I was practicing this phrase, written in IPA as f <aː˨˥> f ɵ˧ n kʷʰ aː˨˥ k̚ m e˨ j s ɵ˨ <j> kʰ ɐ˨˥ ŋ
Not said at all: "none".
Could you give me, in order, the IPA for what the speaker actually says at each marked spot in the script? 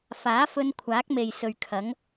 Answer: aː˨˥, ɥ

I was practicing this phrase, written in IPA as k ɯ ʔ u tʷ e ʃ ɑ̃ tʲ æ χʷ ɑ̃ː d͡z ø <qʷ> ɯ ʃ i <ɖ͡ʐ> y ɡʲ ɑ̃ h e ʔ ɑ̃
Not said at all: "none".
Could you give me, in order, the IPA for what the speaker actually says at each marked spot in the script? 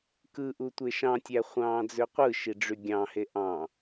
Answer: qʷ, ɖ͡ʐ

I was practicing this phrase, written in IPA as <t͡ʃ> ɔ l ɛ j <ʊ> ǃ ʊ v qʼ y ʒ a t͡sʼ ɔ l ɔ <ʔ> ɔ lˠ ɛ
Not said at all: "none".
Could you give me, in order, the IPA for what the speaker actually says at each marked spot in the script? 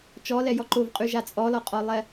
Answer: t͡ʃ, ɔ, qʼ

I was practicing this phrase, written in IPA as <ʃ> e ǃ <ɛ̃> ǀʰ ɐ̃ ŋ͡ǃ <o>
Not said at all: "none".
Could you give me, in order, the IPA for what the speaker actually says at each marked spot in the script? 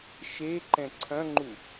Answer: ʃ, ɛ̃, u

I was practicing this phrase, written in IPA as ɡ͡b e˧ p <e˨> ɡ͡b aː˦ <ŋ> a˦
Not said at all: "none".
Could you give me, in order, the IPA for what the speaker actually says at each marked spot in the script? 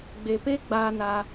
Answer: e˦, n

